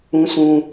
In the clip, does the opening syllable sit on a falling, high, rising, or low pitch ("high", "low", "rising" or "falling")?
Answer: high